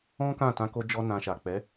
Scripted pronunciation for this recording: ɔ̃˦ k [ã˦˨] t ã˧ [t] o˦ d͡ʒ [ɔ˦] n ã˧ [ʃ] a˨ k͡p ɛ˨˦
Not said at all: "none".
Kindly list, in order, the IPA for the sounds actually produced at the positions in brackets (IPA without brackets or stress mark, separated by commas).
ã˦˨, k, ɔ˦, ʃ